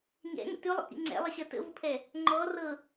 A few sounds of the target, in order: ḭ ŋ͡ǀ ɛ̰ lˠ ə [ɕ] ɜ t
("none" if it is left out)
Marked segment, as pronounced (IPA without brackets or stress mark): ɕ